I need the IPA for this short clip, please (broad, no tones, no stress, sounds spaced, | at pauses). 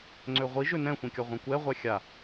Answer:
ŋ͡ǀ ø ʁʷ i ʒ ø n ɛ̃ xʷ ĩ kʲ ɒ ʁʷ ĩ kʷ ɛ ʁʷ ɛ xʲ a